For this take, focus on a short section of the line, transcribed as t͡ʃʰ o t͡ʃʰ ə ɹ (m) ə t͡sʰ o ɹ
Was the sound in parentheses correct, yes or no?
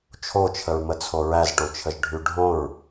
yes